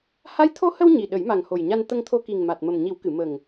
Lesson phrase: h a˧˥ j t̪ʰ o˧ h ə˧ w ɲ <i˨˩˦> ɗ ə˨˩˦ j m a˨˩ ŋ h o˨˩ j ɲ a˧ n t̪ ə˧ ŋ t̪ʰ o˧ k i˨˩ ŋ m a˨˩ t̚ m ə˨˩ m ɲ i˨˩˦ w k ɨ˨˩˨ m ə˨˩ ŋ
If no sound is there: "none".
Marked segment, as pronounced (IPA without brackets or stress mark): i˨˩